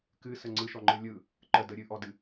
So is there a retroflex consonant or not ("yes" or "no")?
no